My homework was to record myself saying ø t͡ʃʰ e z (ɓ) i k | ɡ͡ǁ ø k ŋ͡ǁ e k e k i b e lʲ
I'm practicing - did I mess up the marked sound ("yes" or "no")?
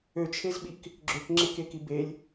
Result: no